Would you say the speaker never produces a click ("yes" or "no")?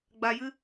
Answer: yes